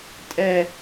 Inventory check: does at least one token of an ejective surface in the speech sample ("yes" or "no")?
yes